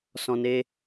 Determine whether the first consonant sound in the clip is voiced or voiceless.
voiceless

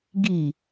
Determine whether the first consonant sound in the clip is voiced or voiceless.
voiced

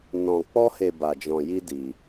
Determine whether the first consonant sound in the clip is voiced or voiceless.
voiced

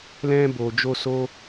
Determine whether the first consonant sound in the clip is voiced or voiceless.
voiced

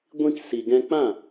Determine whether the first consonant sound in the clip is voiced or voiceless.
voiced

